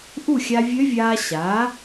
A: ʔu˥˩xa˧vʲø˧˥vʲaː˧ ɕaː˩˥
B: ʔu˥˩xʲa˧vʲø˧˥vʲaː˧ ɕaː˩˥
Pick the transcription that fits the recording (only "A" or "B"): B